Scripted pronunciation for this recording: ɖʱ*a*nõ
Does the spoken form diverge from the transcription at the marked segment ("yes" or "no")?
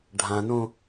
yes